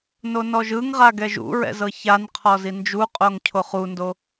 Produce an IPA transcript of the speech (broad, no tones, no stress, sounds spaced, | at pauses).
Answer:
n o n ɔ ʒ ɯ ŋ ʁ a ɡ ɛ ʒ ṵ ɹ ɛ̰ z ɤ ç a n qʰ ɔ z i n d͡ʒ u qʼ o ŋ cʰ o χ u n d o